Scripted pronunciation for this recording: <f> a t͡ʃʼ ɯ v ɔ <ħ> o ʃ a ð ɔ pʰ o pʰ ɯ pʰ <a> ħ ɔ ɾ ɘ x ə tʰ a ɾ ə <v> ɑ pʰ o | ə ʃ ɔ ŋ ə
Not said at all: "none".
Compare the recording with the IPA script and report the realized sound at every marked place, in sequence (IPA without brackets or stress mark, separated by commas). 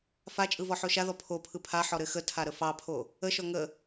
f, ħ, a, f